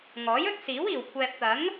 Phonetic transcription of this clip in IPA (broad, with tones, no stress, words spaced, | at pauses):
ŋɔː˨˥jɵ˥t̚siː˨˥w iː˨˩wkʷʰɛː˨p̚t̪ɐ˨˥ŋ